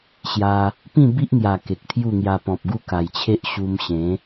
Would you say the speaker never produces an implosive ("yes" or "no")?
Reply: yes